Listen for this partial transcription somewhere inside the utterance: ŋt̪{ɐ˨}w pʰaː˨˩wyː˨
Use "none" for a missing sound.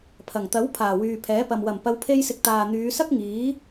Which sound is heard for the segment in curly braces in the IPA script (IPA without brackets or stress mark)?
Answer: ɐ˨˥